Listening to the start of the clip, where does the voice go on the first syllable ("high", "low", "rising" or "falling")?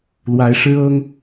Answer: rising